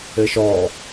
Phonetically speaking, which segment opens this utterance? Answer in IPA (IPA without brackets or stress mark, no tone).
ɘ